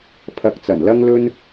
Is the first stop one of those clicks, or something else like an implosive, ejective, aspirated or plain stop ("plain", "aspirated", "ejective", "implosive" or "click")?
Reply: aspirated